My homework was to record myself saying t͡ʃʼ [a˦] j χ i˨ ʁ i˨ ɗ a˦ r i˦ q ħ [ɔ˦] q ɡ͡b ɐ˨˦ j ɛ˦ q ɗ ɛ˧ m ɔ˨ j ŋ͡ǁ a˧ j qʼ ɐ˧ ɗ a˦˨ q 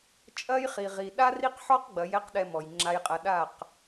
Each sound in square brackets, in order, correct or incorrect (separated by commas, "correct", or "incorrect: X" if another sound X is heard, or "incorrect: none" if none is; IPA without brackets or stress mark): incorrect: ɐ˦, correct